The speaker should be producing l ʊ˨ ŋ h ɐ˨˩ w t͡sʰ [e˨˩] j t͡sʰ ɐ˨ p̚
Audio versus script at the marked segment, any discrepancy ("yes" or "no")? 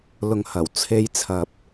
yes